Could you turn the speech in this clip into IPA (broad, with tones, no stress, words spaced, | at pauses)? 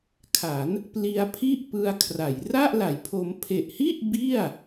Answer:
kʰa˩˦n | pli˧a̯pʰi˥˩ʔ pɯ˧a̯kʰra˩˦j ra˥˩ʔla˩˦jpʰo˧m pʰe˨˩ʔhi˥˩ʔ bi˥˩a̯